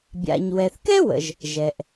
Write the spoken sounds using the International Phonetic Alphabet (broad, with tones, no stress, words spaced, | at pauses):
bʲa̰˩ɲwɛ˩θkɛ˥ wə̰˩ʒ | ʒɛ˩ʔ